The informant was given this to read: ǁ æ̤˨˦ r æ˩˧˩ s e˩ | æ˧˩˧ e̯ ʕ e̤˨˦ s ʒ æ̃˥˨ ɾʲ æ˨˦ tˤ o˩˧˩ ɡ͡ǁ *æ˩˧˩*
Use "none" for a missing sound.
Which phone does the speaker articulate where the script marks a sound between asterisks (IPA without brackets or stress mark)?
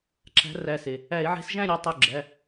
æ˩˧˩